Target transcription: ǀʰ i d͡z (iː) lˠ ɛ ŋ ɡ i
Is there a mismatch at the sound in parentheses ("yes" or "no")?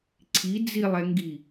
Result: yes